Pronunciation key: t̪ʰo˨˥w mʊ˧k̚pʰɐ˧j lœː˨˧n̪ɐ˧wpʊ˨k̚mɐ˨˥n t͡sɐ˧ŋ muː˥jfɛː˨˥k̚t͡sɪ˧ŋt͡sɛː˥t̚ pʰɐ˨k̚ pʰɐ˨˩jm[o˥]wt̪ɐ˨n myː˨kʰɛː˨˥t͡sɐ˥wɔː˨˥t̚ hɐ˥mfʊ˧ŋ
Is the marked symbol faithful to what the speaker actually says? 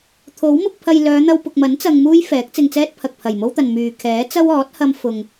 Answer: yes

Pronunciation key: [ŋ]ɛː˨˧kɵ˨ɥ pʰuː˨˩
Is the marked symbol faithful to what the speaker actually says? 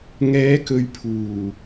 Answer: yes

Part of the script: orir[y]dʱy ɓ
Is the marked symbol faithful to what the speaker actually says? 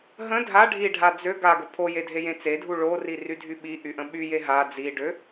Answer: yes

